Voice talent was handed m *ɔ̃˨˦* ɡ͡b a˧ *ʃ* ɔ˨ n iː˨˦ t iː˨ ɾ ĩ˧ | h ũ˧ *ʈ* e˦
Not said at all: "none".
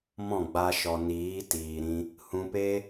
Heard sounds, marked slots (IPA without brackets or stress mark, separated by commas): ɔ̃˦˨, ʃ, p